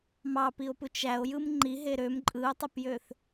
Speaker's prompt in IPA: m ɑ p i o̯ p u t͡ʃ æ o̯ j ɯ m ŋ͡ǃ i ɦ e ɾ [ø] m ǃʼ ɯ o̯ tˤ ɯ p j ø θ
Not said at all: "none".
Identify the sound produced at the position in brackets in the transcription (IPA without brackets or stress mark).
ø